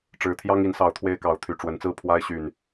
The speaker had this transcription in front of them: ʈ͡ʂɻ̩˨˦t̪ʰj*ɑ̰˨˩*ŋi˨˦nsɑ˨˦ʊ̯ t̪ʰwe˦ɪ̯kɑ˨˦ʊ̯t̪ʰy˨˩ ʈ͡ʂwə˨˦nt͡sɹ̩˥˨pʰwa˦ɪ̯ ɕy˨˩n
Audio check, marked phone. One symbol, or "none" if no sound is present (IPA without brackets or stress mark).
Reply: ɑ˦